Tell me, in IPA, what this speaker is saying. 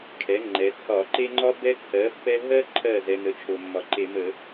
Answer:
kʰɛ˩˥ŋ͡ǃɛ˩˧ t͡sʰɒ˧˩˧ǃe˥ ŋ͡ǃɒ˥ bɛ˥ t͡sʰɜ˩˥ pːɛ˥ ɦɜ˥ǃʰɜ˧˩ zɛ˩˧n̪ə˩˥t͡ʃʰo˩ mːɒ˩ǃe˧˩˧mə˧˩˧

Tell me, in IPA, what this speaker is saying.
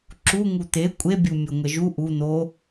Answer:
ǁu ŋut̪e kʷʼebʲumʲo ŋʷɛʒu ʔu n̪o

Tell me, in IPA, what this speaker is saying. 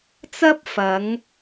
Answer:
t͡sɐ˥p̚fɐ˨˧ŋ

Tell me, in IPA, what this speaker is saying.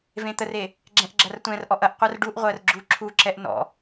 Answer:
vẽt̪əre | ɡ͡ǁɛ̃ʔɡ͡ǁɐrtʷɛ̃rʔɔʔ ɐʔqʷær ɖuʔʁʷɜr ɡ͡ǁu ǁʰuǁɛʔ nɔ̰

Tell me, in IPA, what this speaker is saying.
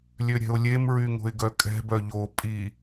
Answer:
lʲøɾʲɛ̤ʊ̯lʲem ɹyŋo̤ɪ̯ɡœkʼɛ̤ bœʎo pʼi

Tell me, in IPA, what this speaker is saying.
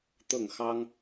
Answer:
t̪ɤ˥˩ŋxɑ˥ŋ

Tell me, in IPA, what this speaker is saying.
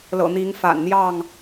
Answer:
lɤ̰˨˩n̪i˨˦ŋ fa̰˨˩nn̪jɑ˥˨ŋ

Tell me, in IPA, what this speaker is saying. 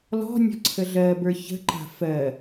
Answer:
lɔ̤nʲɔ̤ ǀʰəɮɜbə˞ çə̤ǃa̤ fɜ

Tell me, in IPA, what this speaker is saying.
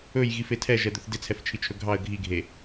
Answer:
ɵjɣif etʰɛʒɛd̪ɵθ dɪt͡sʰɛft͡ʃʰit͡ʃʰɵ ɡʱɑə̯ ɡʱiɡʱe

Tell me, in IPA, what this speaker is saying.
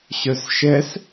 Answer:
ɕœsʃɛs

